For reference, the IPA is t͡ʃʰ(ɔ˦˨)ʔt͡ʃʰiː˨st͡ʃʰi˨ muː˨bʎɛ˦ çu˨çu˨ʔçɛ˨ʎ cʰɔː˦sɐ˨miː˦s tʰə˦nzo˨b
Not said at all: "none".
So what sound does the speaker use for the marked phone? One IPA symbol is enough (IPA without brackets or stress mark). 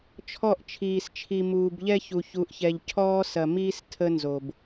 ɔ˦˨